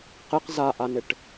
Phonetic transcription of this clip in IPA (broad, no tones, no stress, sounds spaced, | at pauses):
q ɪ q z a ʔ a n ɪ ʈ